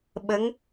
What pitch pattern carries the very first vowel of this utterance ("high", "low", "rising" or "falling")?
rising